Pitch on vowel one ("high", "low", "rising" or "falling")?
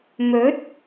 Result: rising